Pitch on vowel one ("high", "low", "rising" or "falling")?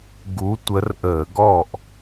rising